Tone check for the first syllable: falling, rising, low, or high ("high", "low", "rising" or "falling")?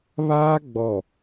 high